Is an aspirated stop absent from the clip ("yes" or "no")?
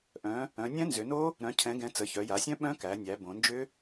no